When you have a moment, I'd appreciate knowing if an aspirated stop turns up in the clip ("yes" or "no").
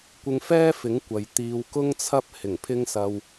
yes